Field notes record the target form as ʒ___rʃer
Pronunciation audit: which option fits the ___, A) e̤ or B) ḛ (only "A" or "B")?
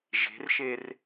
A